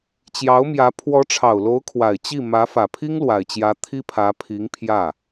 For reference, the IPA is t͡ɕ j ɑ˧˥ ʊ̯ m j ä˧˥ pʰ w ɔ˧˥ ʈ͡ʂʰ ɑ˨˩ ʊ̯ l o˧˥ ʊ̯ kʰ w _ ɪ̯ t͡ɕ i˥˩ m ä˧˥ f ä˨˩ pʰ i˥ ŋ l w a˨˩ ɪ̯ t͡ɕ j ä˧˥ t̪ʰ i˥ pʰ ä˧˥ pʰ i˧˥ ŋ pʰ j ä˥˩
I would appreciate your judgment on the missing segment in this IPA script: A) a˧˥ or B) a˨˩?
B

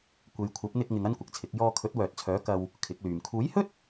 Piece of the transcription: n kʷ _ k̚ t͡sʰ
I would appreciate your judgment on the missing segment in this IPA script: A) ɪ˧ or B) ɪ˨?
B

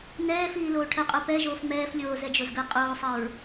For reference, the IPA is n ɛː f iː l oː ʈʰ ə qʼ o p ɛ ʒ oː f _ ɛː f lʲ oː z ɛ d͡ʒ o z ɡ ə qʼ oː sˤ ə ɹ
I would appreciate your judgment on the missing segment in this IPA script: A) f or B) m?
B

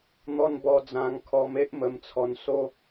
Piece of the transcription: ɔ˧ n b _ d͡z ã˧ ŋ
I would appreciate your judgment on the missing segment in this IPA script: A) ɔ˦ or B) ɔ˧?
B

